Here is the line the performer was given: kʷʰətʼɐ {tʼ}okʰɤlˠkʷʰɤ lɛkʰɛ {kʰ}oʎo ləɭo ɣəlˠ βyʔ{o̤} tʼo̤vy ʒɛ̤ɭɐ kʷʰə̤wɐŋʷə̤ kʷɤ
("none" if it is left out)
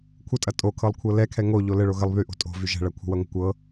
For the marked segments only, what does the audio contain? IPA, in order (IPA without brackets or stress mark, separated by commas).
tʼ, ŋ, o̤